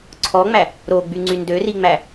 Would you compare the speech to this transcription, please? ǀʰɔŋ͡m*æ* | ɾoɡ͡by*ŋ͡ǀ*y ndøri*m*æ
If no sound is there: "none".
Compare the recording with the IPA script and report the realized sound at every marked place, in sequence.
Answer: æ, ŋ͡ǀ, ŋ͡m

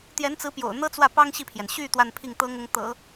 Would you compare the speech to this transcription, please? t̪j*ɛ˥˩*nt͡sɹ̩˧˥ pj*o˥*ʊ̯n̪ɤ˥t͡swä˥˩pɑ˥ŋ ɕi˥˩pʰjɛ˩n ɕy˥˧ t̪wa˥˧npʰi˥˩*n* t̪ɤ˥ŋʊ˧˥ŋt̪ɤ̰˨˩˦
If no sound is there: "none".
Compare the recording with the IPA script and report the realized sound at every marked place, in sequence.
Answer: ɛ˧˥, o̰˨˩, ŋ

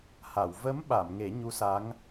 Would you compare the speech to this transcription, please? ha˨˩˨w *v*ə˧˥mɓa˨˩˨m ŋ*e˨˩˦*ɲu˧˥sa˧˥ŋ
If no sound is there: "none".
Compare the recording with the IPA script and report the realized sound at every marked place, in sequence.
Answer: v, e˨˩˦

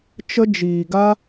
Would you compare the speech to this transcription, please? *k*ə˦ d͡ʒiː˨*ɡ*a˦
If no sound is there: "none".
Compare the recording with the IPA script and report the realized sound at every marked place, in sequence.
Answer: t͡ʃ, ɡ

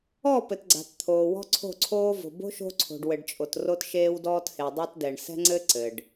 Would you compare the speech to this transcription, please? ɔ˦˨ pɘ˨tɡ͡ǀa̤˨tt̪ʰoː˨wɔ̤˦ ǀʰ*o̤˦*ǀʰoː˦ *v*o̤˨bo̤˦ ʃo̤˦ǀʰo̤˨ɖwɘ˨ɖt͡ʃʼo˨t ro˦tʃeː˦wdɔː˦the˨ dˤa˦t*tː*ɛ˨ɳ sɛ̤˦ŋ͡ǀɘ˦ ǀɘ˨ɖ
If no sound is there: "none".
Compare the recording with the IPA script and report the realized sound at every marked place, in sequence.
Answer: o̤˦˨, v, d

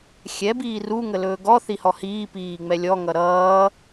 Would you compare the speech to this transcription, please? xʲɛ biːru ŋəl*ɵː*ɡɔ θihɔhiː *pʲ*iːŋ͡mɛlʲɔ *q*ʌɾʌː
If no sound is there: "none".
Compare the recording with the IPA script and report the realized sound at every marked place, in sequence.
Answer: ɵː, p, ŋ

